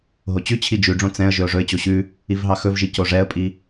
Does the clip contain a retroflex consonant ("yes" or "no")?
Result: yes